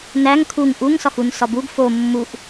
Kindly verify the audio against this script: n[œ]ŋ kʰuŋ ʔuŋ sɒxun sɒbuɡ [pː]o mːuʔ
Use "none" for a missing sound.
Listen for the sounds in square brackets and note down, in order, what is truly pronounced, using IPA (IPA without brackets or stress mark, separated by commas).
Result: æ, f